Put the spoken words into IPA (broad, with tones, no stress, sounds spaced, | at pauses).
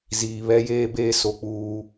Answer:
z iː˨ β ɛ˦ j eː˦ b eː˦ s o˦ k͡p uː˦